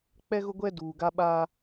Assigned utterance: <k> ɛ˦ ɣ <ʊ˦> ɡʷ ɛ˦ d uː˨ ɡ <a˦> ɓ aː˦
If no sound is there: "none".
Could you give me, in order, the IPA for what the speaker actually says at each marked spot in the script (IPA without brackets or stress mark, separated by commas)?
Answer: k͡p, ʊ˦, a˦